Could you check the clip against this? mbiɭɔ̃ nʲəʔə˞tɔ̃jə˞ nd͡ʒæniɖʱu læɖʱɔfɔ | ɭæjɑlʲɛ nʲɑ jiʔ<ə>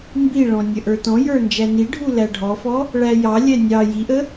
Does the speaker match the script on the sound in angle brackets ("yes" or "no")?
yes